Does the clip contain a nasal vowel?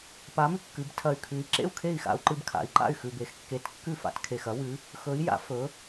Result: no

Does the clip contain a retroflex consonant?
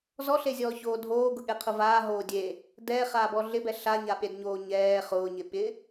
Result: no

